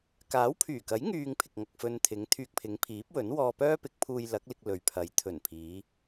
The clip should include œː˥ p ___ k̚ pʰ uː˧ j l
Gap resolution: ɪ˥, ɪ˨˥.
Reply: ɪ˨˥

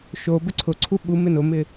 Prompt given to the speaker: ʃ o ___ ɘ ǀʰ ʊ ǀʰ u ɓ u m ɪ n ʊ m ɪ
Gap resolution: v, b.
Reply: b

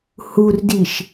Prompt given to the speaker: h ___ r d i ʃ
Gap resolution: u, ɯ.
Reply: u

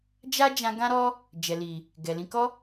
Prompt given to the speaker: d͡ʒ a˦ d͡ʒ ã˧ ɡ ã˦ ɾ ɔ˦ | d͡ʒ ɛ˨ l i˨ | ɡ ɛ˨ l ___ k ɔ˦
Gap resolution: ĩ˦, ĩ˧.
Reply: ĩ˧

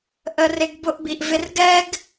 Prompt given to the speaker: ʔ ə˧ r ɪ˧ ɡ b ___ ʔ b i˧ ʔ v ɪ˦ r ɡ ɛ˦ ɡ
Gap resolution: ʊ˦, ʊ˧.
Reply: ʊ˦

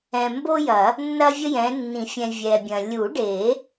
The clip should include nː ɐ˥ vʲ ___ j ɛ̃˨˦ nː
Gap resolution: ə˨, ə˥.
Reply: ə˥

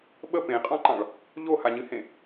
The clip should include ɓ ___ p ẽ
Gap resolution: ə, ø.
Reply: ə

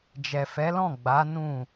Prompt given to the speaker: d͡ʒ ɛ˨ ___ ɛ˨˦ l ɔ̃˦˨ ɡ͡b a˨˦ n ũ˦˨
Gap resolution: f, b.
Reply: f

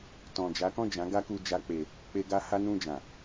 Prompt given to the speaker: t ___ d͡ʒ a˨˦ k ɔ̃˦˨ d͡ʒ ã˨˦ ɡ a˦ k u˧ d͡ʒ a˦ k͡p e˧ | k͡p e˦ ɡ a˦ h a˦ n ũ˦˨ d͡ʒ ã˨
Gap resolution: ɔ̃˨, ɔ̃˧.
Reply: ɔ̃˨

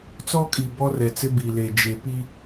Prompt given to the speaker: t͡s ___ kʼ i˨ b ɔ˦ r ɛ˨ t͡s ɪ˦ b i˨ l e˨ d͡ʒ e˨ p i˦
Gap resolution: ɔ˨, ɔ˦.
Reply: ɔ˦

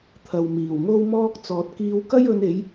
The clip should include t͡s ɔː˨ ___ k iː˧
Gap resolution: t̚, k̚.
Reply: t̚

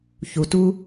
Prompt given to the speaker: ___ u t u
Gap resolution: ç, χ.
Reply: ç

